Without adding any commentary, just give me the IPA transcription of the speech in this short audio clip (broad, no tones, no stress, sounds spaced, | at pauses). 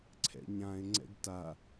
ǀʰ ɛ̰ ɲ ã ɪ̯ ŋ͡ǀ ɛ̰ ɡ t a